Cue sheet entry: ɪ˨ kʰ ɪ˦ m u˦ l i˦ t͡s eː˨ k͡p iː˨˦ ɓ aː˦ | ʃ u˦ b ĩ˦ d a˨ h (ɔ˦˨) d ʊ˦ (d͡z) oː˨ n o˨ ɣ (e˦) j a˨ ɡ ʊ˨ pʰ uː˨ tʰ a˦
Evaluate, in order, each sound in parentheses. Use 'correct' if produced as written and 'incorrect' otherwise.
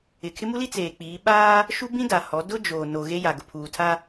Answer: incorrect: ɔ˨˦, incorrect: d͡ʒ, correct

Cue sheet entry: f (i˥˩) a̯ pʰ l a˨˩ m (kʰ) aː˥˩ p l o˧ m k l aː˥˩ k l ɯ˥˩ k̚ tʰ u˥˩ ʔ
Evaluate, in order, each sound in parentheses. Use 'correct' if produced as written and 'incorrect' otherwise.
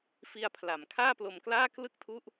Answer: incorrect: i˧, correct

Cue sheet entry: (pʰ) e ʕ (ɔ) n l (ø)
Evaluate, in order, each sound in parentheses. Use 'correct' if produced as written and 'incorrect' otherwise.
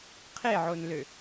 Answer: incorrect: qʰ, incorrect: o, correct

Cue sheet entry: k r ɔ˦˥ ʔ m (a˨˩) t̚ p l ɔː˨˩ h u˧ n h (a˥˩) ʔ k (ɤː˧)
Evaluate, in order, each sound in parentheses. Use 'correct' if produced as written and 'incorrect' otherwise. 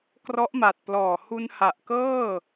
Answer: correct, incorrect: a˨˩, incorrect: ɤː˥˩

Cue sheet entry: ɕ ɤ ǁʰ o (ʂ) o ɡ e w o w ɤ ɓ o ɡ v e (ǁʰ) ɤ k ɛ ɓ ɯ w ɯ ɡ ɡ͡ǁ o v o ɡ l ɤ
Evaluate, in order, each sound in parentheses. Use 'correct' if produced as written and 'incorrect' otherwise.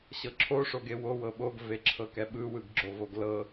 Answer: correct, correct

